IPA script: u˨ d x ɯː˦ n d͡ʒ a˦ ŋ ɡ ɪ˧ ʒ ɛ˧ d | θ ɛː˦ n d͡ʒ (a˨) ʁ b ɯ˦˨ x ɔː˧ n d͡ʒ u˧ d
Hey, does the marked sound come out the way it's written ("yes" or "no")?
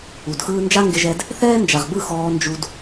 yes